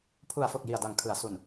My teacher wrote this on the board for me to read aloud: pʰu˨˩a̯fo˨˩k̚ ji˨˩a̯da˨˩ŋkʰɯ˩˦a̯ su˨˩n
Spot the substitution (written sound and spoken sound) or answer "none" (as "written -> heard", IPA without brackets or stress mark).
none